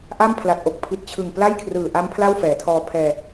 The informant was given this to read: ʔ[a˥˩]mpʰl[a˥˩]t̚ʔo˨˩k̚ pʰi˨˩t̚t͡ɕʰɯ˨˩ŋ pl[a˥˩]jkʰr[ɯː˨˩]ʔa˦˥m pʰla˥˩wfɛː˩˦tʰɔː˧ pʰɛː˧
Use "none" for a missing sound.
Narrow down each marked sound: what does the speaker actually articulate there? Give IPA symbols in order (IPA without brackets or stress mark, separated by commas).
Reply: a˥˩, a˨˩, a˥˩, ɯː˨˩